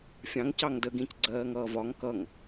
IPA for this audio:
fʲ ɑ̃ ŋ c ɑ ŋ d ə ɡ ĩ c ɡ͡ǀ ɜː ŋ ʌː v ɒ ŋ k ʌ ŋ

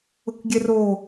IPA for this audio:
ʊ k ɡʲ ɛ r o

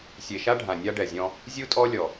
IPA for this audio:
sʲ e˨ ʃ a˦ ɖʱ ã˨ nʲ a˦ ɖ ɛ˨ zʲ ɔ̃˦ | zʲ u˦ tʼ ɔ˦ lʲ ɔ˨

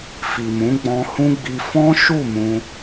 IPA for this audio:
f i˨ m ũ˨˦ ɡ͡b ɔ̃˧ h ũ˦ ɡ͡b i˧ f ɔ̃˦ ʃ u˦˨ m ũ˧

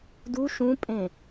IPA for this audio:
d u ʃ ũ pʼ ẽ

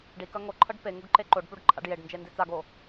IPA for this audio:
ɖ i k ɐ ŋ o ǃʰ ɤ ɖ p e ŋ u ɡ ǃ e ǃ o ɖ p u ɖ ǃʰ a̰ ɖ j e ɖ n d͡ʒ e n d i t͡s a ɡ o

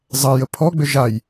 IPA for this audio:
zˤ ɐ j ə pʰ ɔ ɡ͡b ʏ ʒ a j

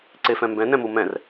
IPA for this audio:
ǀ e f ɛ̃ m b ɛ̃ n ɛ̃ m u m ɛ̃ r

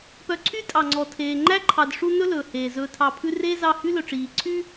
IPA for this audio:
p œ˨ ǀʰ y˦ tʼ ɑ˩ ŋ͡ǀ ɔ˩ tʰ eː˩ ŋ͡ǃ æ˥ ǃʰ ɑ˨ d ʂ u˦ n ɵ˥ l ɵː˩ h eː˩ z ɵː˨ tʰ ɑ˨ pʰ ʉ˦ r eː˥ z ɑ˦ h y˥ l ɵ˨ ʈ͡ʂ iː˩ ǀʰ y˦

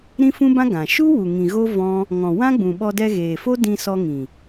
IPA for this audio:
ɾ ĩ˦ f ũ˦ b ã˦ ɡ ã˨ ʃ u˦ w u˨ ŋ ĩ˨ ɣ o˦ v ɔ̃˦ | ŋ ɔ̃˨ w ã˦ ɡ͡b ũ˨ ɓ ɔ˧ d ɛ˧ ɣ eː˨ f o˦ d ĩ˧ s ɔ˧ ŋ ĩ˨

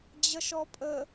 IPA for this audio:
d͡ʑ ʌ ʃ ɔ pʼ ə

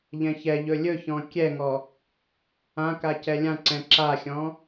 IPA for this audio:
ʎ ɛ̃ ç ɛ ʎ ɵ lʲ ɵ ç ɔ̃ kʲ ɛ ŋ ɔ | ã k a c ɛ lʲ ã ǀ ɛ̃ ǁ a xʲ ɔ̃

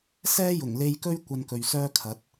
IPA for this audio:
s ɛː˥ j ʊ˨˩ ŋ l e˧ j k ɵ˥ ɥ kʷ ɐ˧ n k ɵ˨ ɥ s œː˥ kʰ ɐ˨˥ t̚

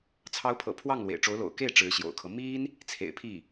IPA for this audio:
t͡sʰ ɑ˧˥ ʊ̯ pʰ ɤ̰˨˩ pʰ w ɑ˥˩ ŋ l w ḛ˨˩ ɪ̯ ʈ͡ʂ o˧˥ ʊ̯ l o̰˨˩ ʊ̯ k e˥˩ ɪ̯ ʈ͡ʂ ɻ̩˧˥ ɕ j o̰˨˩ ʊ̯ kʰ ɤ˦ m i˥ n | t͡sʰ ḛ˨˩ ɪ̯ pʰ i˥˩

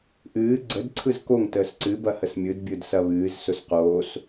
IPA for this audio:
ʔ ɨː ɡ͡ǀ ə d ǀʰ ɯ z k o ŋ t əː s ǀ ɨ b ɐ h ə s mʲ ɯ d bʲ ɯ d s ɐ β ɨː z s ʊ s q oː s

